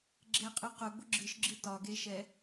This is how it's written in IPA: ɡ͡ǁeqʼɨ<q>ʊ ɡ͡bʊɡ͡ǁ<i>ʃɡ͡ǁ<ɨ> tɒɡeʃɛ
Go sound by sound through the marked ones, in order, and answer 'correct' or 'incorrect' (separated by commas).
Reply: correct, incorrect, correct